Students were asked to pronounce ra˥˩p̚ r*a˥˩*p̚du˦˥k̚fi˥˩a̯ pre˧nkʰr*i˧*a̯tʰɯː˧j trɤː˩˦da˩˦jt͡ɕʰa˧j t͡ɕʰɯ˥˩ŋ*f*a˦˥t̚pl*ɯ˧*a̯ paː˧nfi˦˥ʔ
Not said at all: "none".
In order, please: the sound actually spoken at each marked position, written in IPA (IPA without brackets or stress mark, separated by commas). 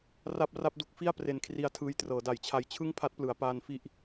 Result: a˥˩, i˧, pʰ, ɯ˩˦